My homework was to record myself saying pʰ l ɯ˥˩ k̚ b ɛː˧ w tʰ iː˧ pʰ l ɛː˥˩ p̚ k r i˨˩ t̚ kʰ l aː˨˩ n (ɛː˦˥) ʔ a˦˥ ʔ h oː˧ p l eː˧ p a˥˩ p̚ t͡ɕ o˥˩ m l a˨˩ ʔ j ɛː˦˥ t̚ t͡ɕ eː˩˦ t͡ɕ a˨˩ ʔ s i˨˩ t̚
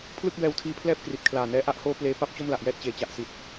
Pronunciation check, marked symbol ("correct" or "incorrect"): correct